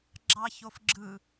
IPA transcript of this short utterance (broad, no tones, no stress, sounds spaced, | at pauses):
ɡ͡ǁ ɑ ç o f ɡ͡ǁ ɯ